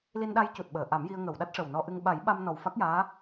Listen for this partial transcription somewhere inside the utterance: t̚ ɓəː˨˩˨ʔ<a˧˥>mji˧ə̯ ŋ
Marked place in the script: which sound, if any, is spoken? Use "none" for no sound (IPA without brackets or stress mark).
a˨˩˦